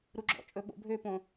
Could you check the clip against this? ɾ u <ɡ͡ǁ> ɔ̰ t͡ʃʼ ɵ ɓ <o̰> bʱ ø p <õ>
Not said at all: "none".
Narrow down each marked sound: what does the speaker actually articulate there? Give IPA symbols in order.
ɡ͡ǁ, o̰, õ

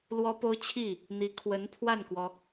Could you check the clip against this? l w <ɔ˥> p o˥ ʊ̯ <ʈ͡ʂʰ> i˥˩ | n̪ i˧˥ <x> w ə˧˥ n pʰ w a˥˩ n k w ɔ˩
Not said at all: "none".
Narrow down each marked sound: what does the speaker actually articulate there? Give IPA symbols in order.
ɔ˥, t͡ɕʰ, kʰ

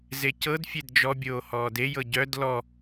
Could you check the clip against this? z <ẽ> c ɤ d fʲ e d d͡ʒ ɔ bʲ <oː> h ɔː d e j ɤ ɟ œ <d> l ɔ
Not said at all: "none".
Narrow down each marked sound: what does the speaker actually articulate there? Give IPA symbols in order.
e, oː, d

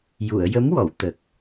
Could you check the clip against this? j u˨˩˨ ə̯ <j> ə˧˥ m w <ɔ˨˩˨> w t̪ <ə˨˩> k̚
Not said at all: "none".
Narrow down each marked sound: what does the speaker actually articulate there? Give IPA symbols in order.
j, ɔ˨˩˨, ə˨˩

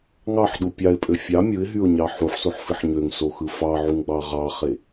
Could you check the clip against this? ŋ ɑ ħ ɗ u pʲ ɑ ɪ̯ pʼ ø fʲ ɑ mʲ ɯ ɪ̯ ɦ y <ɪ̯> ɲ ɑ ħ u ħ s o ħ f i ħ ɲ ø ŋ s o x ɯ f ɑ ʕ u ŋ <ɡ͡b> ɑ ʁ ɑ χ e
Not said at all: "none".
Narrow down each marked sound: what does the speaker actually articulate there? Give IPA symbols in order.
ʊ̯, ɡ͡b

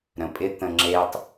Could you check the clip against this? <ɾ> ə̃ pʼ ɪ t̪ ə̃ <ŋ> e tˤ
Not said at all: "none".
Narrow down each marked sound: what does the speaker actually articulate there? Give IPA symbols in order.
ɾ, ŋ͡ǁ

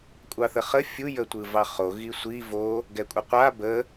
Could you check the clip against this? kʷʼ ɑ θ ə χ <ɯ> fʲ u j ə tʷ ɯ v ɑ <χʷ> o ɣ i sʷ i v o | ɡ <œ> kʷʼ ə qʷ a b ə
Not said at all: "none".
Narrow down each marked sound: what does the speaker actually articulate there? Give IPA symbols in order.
ə, χ, ɛ

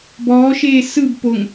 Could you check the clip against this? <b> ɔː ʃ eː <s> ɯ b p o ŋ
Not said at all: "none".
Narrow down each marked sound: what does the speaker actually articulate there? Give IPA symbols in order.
b, s

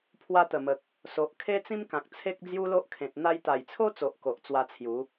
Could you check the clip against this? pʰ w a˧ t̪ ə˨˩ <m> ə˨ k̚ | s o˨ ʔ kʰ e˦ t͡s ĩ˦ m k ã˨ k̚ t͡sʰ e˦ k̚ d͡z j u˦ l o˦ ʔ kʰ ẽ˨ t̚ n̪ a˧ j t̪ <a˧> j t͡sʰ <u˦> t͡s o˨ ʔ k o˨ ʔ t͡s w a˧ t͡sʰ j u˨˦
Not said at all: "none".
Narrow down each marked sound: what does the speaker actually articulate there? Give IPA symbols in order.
m, a˨˩, o˦

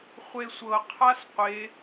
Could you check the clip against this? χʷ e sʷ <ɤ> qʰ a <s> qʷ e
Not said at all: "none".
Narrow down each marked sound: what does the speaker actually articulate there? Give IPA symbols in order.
ɤ, s

